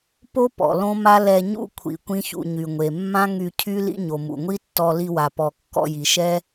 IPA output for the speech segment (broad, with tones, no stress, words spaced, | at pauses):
po˦ pɔ̰˨lõ˦ma˦ lɛ˧ɲṵ˦ kʷʰḭ˧kʷĩ˦çṵ˧ ɲy˨ŋʷe˨mːã˦ ŋy˧cʰy˦ lḭ˦ɲo˨ mṵ˨ŋʷi˦tːɔ˧ li˧wa˨ pɔ˨kːɔ̰˧ji˨ʃɛ˦